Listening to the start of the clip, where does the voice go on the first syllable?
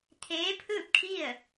rising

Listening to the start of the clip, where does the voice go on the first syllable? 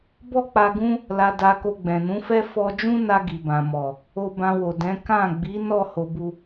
high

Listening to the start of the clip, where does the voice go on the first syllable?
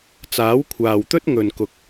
rising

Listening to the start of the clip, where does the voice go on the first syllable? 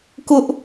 high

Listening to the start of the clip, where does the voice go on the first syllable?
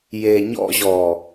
low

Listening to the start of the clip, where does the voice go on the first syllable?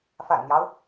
low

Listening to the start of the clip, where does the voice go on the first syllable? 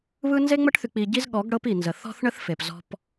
high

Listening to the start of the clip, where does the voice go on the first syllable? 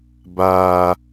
low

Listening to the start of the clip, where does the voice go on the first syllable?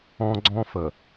high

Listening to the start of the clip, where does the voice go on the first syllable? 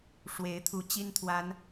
rising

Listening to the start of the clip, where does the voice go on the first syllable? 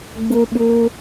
high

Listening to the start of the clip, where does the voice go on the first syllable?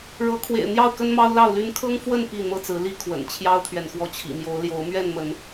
rising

